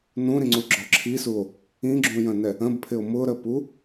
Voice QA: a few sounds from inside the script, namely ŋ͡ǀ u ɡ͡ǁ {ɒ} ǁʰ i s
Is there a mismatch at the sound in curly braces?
no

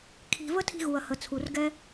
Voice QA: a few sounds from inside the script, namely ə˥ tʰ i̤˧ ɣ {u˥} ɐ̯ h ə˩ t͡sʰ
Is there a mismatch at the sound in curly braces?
yes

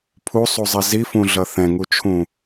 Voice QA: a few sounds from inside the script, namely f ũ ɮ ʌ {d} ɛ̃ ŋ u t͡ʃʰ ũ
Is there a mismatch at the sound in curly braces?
yes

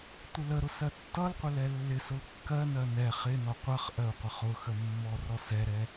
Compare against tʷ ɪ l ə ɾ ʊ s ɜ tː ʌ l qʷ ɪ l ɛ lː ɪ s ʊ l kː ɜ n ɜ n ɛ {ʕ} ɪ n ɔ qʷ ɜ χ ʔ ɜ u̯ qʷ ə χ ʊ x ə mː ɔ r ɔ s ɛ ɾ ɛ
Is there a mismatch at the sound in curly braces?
yes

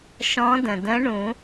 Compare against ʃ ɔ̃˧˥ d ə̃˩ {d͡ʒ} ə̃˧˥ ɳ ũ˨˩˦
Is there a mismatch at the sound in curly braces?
yes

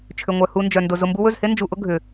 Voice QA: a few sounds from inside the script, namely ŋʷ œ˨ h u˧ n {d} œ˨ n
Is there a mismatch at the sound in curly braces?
yes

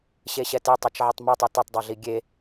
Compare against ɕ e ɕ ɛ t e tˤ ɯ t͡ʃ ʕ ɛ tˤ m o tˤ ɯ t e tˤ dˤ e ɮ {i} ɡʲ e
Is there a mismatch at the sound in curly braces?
no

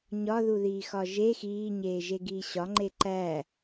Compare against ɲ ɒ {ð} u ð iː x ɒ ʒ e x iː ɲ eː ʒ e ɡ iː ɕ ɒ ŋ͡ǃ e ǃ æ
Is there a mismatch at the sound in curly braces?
no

